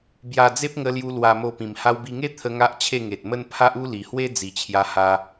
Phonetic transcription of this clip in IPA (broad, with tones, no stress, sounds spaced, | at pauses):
b j a˧ d͡z e˦ p̚ ŋ ə˧ l j u˧ l w a˧ m o˧ p ĩ˨˩ m h a˧ w b i˧ ŋ e˦ t̪ʰ ə˧ ŋ a˦ ʔ t͡ɕʰ e˥˧ ŋ e˨ t̚ m ə˦ n pʰ a˦ ʔ u˦ l i˨˩ h w e˦ d͡z i˨˩ t͡ɕʰ j a˧ h a˧